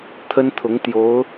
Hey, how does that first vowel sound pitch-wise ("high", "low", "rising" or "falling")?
high